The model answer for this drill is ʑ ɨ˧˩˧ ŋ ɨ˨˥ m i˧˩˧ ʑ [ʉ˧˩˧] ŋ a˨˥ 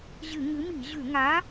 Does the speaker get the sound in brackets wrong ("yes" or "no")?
no